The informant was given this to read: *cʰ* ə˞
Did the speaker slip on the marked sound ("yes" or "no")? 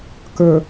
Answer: yes